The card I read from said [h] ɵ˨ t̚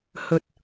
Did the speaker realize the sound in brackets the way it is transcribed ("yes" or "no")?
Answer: yes